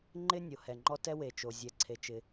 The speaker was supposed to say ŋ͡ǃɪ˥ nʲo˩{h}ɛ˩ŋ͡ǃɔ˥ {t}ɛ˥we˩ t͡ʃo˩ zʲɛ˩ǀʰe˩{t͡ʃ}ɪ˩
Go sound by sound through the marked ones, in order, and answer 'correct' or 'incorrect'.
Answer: correct, correct, correct

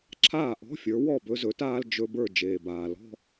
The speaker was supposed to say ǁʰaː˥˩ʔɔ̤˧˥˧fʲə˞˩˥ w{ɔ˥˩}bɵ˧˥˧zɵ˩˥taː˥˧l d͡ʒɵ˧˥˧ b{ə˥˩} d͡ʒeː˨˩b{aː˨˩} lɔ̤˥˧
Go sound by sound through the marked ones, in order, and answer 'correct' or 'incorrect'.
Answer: correct, incorrect: ə˞˥˩, correct

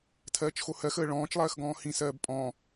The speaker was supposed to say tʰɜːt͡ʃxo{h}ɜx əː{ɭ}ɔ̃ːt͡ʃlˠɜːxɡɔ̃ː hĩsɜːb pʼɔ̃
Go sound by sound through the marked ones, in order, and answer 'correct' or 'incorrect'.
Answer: correct, correct

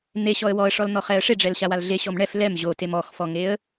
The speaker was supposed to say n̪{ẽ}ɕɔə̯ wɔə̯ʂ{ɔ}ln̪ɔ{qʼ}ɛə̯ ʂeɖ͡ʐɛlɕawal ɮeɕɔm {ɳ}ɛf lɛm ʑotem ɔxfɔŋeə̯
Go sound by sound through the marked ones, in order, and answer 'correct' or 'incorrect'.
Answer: incorrect: e, correct, incorrect: χ, correct

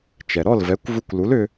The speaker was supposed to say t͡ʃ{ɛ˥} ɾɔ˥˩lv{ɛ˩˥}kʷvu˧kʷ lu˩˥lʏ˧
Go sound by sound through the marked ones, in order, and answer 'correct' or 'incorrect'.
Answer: incorrect: ɛ˩, correct

